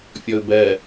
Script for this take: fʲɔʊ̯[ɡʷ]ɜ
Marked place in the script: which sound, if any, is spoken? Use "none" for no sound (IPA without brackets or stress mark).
b